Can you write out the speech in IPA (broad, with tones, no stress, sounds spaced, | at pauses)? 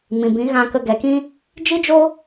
m ĩ˨ b ĩ˨˦ ɣ ã˧ k ə˧ ɡ ɛ˨ k ĩ˦ | d͡ʒ i˦ d͡ʒ o˦